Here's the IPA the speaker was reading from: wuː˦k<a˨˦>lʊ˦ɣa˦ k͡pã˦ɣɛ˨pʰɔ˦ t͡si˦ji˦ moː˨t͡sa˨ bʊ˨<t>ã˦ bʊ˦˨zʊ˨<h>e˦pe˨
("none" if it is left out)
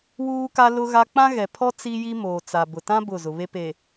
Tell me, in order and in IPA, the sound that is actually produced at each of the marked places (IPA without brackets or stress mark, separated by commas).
a˦, t, β